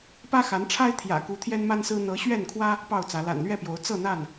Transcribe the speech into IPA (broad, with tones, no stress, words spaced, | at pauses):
pä˦xa˨˦nʈ͡ʂʰa˦ɪ̯ t̪ʰjä̰˨˩ku˨˦ t̪ʰjɛ˦nma˦nsɹ̩˦ n̪ɤ˨˦ ɕɥɛ˥˨nkʰwä˦ | pɑ˥˨ʊ̯t͡sä˨˦ la̰˨˩nlɥɛ˥˨pjo˨˦ʊ̯ t͡sɤ˥˨n̪a˥˨n